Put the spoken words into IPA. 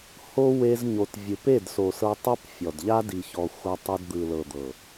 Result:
h o˦ w e˧ z ɲ o˨ t vʲ ɯ˧ p e˦˨ d s o˨ s ɤ˧ tˤ ɛ˦ p fʲ ɔ˨ d ʎ a˦ d i˨ ç ɔ˨ xʷ a˧ tˤ ɛ˧ d d̪ ɯ˨ l ɤ˨ d̪ ɤ˨

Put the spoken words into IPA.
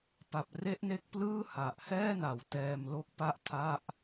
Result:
p a˨˩ p̚ r e˦˥ ʔ n e˦˥ k̚ p l ɯː˥˩ h a˨˩ ʔ h ɛː˥˩ n a˨˩ w t ɛː˧ m l o˥˩ k̚ p a˥˩ ʔ tʰ a˥˩ ʔ

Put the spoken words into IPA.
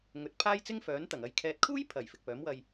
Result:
ŋ ɵ˨ t̚ pʰ aː˥ j t͡s ɪ˥ ŋ f œː˨˥ n t̪ ɐ˨˩ ŋ ɐ˨˧ j kʰ ɛː˨ t̚ kʰ uː˥ j pʰ ɐ˨˩ j f ɪ˨ k̚ p œː˨˥ m w ɐ˧ j

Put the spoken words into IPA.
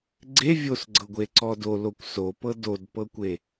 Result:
ɡ͡ǀ e vʲ o s ɡ͡ǀ ɤ ɡʷ e ǀ ɔ d o l o kʷ s o p ɤ d o d p ɤ kʷ e

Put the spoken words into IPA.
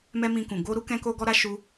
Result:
m ɛ˦ m ĩ˧ k ũ˨ ɡ o˧ ɾ u˦ k ɛ̃˦ k o˦ ɡ ɔ˦ ɾ a˦ ʃ u˧

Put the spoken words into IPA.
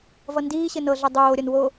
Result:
v ʌ n d iː ɕ ɘ n ɤ ɮ ɛ dˤ oː ɾʲ ʌ n w o

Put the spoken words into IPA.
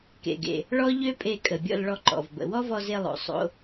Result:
k ḛ˩ ɡ ḛ˩ | ɭ ɔ˥ ʎ ø˥ pʼ e˧ kʼ ə˩ bʲ ɔ̰˧ l ɭ ɔ˧ ǃ ɔ̰˩ v b ə̰˩ w ɔ˥ v ɔ˧ z e˧ lˠ o̰˩ sˤ o̰˧

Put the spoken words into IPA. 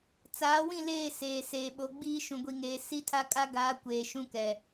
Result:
t͡s aː˨˦ w ĩ˦˨ l eː˦˨ s eː˨ s eː˨ ɓ o˨˦ ɡ͡b iː˦ ʃ ũ˨ ɡʷ i˨ ŋ eː˨ s i˦ tʰ a˦ kʼ a˦ ɡ aː˨˦ kʷ eː˨ ʃ ũ˦ k ɛ˨

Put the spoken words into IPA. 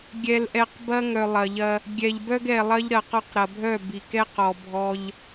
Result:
ɡʲ ɛ˨ l ʔ ɛ˨ q b ɐ˦ ŋ œ˨ lˠ ɐ˨ ʎ ɐ˦ | ɡʲ ɛ˨ ʎ b œ˦ ɡ ɛ˨ lˠ ɐ˦ ʎ ɾ ɐ˨ q ɔ˦ q ɾ ɐ˨ bʱ œ˦˨ b i˨ k ɛ˦ q ɔ˨ bʱ ɔ˦ ʎ

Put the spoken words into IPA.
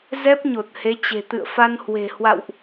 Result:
z ɛ˦˥ p̚ ɲ o˨˩ t̚ h e˨˦ t͡ɕ e̤˨˩ t̪ ɨ̰˧˨ ə̯ f a˧ n h w e̤˨˩ h w a̰˧˨ w ʔ

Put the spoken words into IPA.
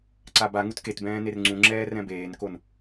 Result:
ǀ a b a ŋ u t k e t b ɛ̃ː n e r ŋ͡ǀ ũ ŋ͡ǁ ɛː r ɛ̃ b eː n k o n

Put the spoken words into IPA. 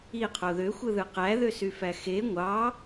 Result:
i qʰ o ð ø xʷ ɯ ð ɯ q æ ð ø s y f æ x e ŋʷ ɑ

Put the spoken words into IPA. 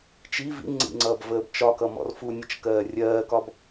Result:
t͡ʃ i v ḭ ŋ͡ǀ ḭ ŋ͡ǀ ʌː b v əː b t͡ʃ ɒ k ʌ m ɔ̰ r f u nʲ ə t͡ʃ k ɜː rʲ ɜː k ɒ b

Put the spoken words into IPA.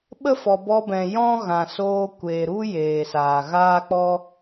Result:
ɓ ə˦ f ɔ˨ b ɔ˧ b ɛ̃˨ j ɔ̃˦ ɣ ã˨ s oː˧ kʷ eː˨ ɾ u˦ j eː˨ s aː˨ ɣ aː˦ k͡p ɔ˦

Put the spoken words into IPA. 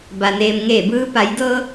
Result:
b a˩ n eː˩ m ŋ eː˧˩ b ɯː˧ p a˩˧ j d ɤː˧

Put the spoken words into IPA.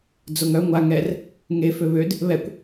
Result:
d͡z o ŋ œ ŋʷ a ŋ ɛ r | ŋ e f ø β ø d | β ɛ kʷ

